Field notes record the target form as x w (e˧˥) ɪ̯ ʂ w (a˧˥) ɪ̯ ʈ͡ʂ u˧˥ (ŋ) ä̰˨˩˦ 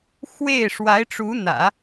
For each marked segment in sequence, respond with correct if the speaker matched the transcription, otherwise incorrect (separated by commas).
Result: incorrect, correct, incorrect